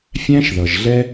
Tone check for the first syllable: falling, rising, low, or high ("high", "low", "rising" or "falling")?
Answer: high